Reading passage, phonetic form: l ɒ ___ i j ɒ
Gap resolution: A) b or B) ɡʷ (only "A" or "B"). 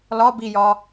A